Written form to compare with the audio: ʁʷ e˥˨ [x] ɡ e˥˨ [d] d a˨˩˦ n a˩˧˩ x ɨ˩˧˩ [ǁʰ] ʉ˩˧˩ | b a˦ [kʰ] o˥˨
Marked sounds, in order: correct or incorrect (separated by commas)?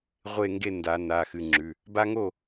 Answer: incorrect, incorrect, incorrect, incorrect